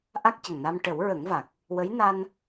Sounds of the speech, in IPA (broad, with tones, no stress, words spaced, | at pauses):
ʔa˦˥k̚cə˨˩ŋna˧m ʈə˨˩˦wɹə˨˩˦ŋva˨˩k̚ | wə˧˥j na˧n